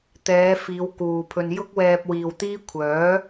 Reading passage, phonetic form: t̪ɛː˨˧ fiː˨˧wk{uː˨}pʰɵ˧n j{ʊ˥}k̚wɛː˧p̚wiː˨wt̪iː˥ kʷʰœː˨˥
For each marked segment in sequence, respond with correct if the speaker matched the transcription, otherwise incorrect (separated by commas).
correct, correct